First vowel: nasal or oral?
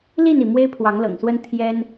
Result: oral